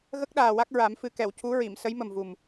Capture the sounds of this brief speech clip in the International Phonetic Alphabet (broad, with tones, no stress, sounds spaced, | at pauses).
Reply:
ɣ ə˦˥ k̚ ɗ aː˨˩ w a˦˥ k̚ ɹ a˨˩˦ m f ɨ˨˩ k ɛ˨˩˨ w c u˧˥ ɹ i˨˩˨ m s ə˧˥ j m ə˨˩ m v u˨˩ m